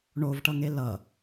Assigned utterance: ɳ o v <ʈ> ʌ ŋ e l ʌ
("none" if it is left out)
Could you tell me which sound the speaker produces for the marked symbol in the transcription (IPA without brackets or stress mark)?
ʈ